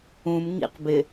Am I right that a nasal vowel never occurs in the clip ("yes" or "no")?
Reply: no